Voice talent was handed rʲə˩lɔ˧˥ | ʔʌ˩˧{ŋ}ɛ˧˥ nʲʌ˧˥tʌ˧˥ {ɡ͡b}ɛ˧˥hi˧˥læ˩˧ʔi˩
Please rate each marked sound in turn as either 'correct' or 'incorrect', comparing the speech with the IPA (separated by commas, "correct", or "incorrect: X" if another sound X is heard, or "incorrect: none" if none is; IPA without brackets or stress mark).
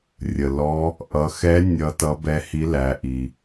incorrect: x, incorrect: b